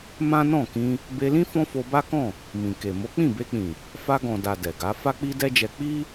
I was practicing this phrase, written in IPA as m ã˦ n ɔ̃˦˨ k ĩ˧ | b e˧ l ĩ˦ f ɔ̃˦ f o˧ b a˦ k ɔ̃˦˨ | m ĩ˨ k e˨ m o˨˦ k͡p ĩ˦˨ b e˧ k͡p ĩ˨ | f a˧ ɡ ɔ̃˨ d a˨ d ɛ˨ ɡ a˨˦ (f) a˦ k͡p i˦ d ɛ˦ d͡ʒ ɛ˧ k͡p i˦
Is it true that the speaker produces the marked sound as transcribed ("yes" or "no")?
yes